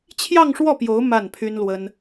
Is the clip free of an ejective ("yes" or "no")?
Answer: yes